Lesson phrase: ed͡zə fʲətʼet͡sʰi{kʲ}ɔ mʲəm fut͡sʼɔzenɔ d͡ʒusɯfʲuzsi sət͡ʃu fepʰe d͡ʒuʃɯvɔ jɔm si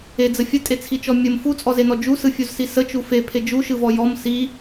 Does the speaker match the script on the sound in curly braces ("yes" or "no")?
no